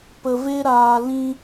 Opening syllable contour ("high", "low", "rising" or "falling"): low